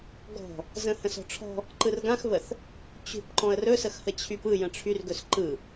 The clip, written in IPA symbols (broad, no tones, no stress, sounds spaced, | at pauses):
ɡ ɔ̤ | z ə̃ h ə̃ s ɔ̤ ʈ͡ʂʰ ɔ̤ | ǃ ɯ r ɡ ã x β ə θ | t͡ɕ ṳ p ǃ ɔ̃ ə̯ r ɵ s ə x h ə t͡ɕʰ y p ɯ j ə̃ ʈ͡ʂʰ y r ɡ ɵ s ǃ ɯ